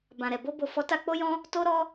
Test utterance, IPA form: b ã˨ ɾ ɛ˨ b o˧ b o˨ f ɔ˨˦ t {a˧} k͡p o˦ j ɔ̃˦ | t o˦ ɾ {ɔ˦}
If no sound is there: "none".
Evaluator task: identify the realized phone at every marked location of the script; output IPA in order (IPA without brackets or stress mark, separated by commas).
a˧, ɔ˦